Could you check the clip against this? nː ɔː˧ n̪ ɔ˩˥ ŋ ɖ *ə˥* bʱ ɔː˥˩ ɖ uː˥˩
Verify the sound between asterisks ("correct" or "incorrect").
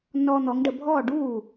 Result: incorrect